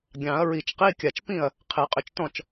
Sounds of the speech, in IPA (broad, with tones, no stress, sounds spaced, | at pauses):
ɡʲ ɑ̃˨˩˦ ɐ̯ ɹ i˨˩˦ t͡ʃ q i˧˥˧ kʲ a˨˩ t͡ʃ p ĩ˥˩ ɐ̯ | qʰ e˨˩˦ qʼ ʏ˨˩˦ t͡ʃ t ɔ̃˥˩ t͡ʃ